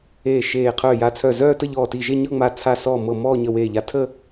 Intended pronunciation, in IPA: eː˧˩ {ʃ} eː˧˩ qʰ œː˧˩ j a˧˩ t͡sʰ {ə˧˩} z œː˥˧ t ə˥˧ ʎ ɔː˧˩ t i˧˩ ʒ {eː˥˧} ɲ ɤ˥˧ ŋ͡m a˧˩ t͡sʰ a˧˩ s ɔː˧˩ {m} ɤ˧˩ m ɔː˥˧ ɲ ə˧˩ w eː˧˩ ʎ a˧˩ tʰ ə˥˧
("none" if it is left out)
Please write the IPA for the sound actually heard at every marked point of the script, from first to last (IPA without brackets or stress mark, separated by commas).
ʃ, œ˧˩, e˥˧, m